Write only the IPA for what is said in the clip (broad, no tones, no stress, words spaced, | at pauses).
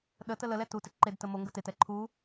ɗə tələlɛ tutɪ ǃed təmoŋɡə tetɛ ǃʰu